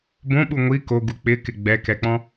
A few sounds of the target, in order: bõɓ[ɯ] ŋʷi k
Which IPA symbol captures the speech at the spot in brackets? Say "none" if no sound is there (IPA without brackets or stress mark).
u